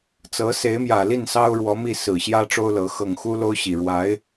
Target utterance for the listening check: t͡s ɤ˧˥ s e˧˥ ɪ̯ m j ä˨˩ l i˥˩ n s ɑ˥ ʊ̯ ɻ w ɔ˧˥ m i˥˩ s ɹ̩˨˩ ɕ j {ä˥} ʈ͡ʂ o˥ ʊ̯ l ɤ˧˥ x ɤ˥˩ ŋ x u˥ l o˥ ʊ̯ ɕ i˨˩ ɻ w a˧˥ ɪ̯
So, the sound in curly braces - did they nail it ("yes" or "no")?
yes